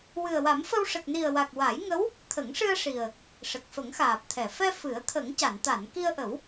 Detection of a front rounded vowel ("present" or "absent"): absent